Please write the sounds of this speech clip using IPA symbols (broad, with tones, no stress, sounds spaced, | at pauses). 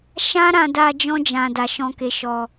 ʃ ã˦ ɾ ã˧ d a˧ d͡ʒ ɔ̃˦ d͡ʒ ã˧ d a˧ ʃ ɔ̃˧ k e˧ ʃ ɔ˧